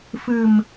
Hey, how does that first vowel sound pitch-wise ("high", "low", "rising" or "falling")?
low